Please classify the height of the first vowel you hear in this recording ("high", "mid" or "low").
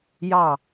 low